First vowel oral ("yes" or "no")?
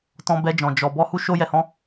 no